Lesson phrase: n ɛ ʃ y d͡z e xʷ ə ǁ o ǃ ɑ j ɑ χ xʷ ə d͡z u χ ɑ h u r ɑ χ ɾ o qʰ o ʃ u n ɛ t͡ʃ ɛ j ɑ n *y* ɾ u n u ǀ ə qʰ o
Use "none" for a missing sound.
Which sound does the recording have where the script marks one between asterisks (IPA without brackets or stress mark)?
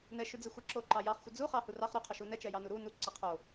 u